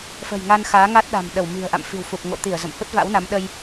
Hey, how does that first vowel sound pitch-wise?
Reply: low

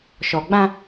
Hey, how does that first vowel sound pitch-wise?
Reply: low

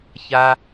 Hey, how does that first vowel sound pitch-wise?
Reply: high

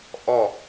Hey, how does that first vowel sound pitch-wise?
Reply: falling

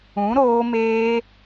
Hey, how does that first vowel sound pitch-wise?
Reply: rising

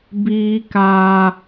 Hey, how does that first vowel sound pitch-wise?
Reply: high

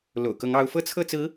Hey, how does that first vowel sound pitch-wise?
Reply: low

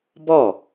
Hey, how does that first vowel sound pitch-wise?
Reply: falling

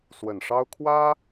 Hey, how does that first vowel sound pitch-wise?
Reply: low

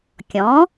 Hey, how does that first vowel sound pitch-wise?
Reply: rising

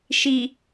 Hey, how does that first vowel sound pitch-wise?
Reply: low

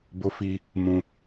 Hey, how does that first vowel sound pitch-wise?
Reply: high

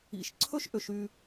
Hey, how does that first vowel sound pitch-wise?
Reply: low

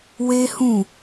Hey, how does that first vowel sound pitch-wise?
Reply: high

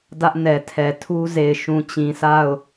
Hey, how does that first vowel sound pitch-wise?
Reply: high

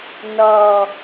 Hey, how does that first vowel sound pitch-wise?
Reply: low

